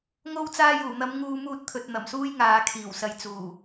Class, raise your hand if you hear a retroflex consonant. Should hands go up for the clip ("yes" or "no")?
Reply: no